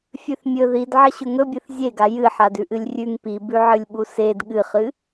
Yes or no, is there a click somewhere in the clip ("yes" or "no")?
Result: no